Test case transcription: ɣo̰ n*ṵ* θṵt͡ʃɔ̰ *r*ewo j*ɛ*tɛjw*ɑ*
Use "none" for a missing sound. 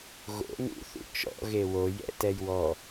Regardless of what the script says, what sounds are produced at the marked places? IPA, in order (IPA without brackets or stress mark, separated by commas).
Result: ṵ, ɣ, ɛ̰, ɔ